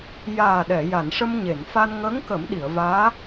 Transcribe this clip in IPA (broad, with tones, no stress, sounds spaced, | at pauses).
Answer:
j aː˨˩ ɗ ɛ˨˩˨ j a˨˩˨ n ʂ ə˧ m ɲ e˨˩˨ n f a˧ n ŋ əː˧˥ ŋ k ə˨˩˦ m ɗ i˨˩˨ ə̯ v aː˧˥